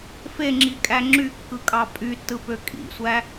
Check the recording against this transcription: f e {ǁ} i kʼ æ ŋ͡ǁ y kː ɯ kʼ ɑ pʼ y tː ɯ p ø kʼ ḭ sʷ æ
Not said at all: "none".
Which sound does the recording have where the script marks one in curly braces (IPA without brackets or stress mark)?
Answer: ŋ͡ǁ